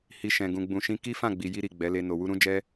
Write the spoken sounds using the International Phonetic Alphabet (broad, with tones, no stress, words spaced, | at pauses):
hi˧ʃɛ̃˨ ɡũ˨ɡ͡bũ˨ʃĩ˧ ki˦fã˦˨ ɡ͡bi˨ji˧ɾi˨ ɡ͡bɛ˨˦le˧ no˨wu˧ɾũ˦d͡ʒɛ˦